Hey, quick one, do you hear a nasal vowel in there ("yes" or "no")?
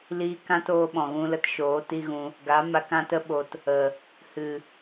yes